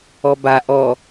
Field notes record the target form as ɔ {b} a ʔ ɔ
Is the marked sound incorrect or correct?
correct